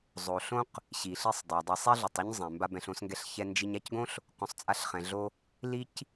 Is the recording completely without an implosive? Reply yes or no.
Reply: yes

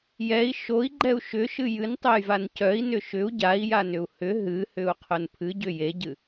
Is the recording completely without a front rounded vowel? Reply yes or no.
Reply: no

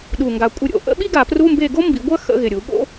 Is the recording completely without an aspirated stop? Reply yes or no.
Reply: yes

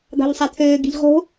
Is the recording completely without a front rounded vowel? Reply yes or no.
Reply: no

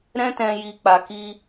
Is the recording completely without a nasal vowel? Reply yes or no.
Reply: no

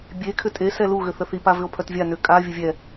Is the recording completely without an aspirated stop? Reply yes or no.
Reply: no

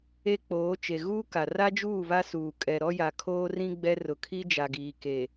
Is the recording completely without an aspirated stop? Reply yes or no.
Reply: no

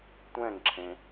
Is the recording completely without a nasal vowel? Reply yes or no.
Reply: no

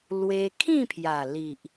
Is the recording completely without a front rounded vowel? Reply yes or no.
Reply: yes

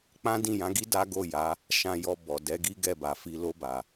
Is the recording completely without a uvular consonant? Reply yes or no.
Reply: yes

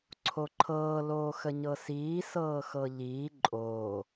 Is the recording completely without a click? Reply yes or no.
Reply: no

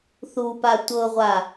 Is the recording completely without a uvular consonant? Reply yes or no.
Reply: no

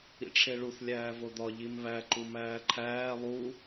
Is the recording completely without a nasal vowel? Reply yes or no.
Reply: yes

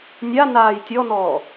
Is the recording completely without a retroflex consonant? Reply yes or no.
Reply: yes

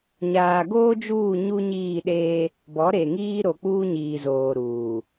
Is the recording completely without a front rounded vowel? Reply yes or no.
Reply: yes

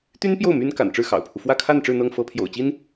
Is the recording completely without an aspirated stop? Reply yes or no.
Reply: no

